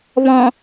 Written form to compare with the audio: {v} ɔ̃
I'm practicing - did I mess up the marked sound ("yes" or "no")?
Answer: yes